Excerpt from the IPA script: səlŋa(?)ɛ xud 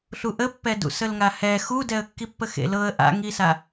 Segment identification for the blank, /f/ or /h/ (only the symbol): h